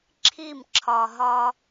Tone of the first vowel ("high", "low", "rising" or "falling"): falling